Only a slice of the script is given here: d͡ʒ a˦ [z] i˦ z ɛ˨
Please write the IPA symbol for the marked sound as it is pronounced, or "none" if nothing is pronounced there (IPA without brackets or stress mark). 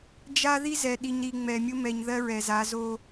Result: ð